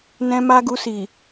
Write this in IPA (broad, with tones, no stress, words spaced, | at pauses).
nɛ̃˧ ma˦ɡu˧si˨